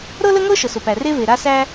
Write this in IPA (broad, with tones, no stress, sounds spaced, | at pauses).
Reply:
ɾ ɤ˥ l ə˥ ŋ ɤ˥ ʃ ə˩ s ʊ˩ p æ˩ r e˥ v e˩ ɾ a˥ s æ˥